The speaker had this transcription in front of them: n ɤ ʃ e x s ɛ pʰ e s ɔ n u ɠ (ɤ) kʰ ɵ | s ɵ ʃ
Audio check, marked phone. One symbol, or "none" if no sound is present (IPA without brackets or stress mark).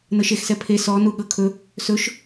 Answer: ɤ